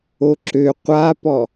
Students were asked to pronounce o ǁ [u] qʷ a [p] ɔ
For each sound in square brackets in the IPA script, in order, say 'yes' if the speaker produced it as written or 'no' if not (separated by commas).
no, yes